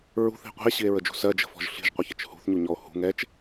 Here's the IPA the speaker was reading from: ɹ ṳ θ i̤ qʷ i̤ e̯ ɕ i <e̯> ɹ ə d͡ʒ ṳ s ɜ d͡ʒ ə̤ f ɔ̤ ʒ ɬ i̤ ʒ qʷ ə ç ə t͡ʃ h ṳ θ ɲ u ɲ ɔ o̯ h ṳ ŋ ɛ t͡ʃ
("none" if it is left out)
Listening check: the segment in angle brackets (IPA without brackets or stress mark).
e̯